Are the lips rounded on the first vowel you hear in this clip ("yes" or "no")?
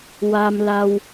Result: no